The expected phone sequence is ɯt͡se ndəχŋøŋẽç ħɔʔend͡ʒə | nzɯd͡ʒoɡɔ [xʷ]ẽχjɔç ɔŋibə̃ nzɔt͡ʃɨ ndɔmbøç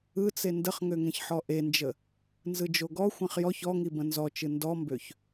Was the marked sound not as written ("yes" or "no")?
no